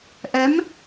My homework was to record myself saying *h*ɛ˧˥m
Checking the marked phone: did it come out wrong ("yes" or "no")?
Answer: yes